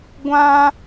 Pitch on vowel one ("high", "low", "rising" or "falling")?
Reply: high